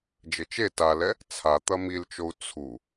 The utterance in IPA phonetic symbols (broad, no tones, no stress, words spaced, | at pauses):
d͡ʒɘt͡ʃe talɛ | t͡sʰa t̪ɐmilt͡ʃou̯ t͡sʰu